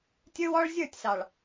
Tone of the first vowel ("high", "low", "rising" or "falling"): high